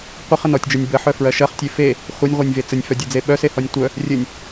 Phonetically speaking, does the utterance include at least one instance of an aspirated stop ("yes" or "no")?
no